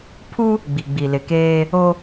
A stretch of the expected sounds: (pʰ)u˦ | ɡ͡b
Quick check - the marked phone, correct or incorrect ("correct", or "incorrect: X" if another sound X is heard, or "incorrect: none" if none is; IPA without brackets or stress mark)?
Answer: correct